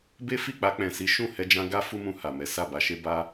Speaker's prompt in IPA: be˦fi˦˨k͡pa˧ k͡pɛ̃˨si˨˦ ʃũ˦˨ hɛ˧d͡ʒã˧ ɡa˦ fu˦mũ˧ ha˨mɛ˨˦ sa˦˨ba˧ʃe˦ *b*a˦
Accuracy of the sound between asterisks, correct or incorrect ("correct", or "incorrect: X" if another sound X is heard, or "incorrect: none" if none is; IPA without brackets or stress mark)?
correct